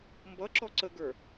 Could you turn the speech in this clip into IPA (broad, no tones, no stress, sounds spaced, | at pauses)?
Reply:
m b ʌ ǁ ɔ ǀ ə ɡ ə˞